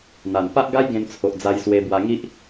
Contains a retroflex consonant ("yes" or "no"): no